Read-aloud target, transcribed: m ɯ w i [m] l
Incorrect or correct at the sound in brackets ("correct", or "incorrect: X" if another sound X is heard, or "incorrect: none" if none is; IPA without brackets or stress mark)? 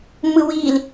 incorrect: none